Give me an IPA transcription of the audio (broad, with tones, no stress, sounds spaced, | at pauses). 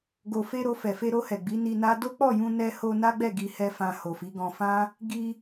ɡ o˨ f e˧ ɾ o˧ f ɛ˨ f e˧ ɾ o˧ h ɛ˨ ɡ͡b i˨˦ n i˧ n a˦ d o˦ k͡p ɔ˦˨ j ũ˧ n ɛ˧ h o˧ n a˦ ɡ͡b ɛ˦˨ ɡ i˧ h ɛ˦ f ã˧ h o˨ f i˨˦ ɡ ɔ̃˧ f ã˦ | ɡ i˧